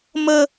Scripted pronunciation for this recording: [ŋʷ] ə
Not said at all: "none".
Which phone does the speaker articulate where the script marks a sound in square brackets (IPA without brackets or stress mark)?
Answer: m